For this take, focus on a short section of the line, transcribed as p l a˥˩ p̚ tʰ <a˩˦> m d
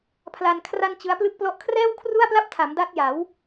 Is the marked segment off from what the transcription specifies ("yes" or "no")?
no